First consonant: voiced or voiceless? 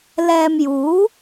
voiced